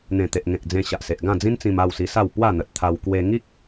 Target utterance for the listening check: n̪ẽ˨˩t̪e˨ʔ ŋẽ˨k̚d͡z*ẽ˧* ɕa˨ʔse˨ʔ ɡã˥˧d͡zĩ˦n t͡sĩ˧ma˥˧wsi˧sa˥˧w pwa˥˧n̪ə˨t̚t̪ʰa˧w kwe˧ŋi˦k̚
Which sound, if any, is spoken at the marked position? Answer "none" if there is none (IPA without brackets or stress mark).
ẽ˧